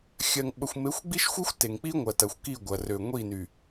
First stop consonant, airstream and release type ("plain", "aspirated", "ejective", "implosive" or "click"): implosive